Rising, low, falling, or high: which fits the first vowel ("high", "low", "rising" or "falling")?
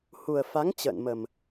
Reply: low